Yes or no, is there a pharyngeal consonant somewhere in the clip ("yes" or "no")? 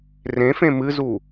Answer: no